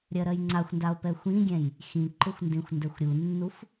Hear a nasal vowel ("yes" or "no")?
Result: yes